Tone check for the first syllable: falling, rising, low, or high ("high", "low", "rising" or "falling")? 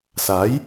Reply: rising